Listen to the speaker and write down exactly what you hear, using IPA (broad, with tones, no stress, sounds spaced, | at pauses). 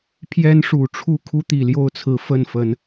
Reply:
pʰ j ɛ˦ n ʂ u˨˩ ʈ͡ʂʰ u˥˨ kʰ u˦ t̪ i˨˩ l j o˥˨ ʊ̯ t͡sʰ ɹ̩˨˦ f ə˥˨ n f ə˨˦ n